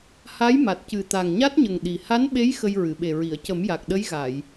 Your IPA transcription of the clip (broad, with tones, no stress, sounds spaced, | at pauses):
h a˧˥ j m a˨˩ t̚ c ɨ˨˩ t̪ a˨˩ ŋ ɲ a˦˥ t̚ ɲ ə˨˩ ŋ ɗ i˨˩ h a˧˥ n ɓ e˧˥ j x ə˧ j ɹ ɨ˨˩˨ ɓ e˨˩ ɹ i˨˩˨ ə̯ c ə˨˩˦ m j a˨˩ k̚ ɗ ə˧˥ j ɣ a˨˩˨ j